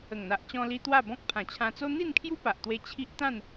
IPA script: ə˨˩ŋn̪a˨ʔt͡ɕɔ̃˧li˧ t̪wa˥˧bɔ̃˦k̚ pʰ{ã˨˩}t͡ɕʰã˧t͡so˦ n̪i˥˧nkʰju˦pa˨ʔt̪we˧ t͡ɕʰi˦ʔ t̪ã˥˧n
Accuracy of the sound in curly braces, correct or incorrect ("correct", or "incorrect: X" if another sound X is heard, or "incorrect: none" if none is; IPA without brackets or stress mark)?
correct